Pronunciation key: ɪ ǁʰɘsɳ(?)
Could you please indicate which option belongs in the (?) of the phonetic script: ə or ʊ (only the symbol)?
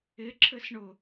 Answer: ʊ